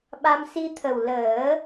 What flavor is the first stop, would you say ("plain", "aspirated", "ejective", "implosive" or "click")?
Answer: implosive